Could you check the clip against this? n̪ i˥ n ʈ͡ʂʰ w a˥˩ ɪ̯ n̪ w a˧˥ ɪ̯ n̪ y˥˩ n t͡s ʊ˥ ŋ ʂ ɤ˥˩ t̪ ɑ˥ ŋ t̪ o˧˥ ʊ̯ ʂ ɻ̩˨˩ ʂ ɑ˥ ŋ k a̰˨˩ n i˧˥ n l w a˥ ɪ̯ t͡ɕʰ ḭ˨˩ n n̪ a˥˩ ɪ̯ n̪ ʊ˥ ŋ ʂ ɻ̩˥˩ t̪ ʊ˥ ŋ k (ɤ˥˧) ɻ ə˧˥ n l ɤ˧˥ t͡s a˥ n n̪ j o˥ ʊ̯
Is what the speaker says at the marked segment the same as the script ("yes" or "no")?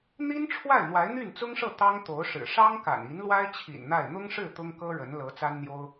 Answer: no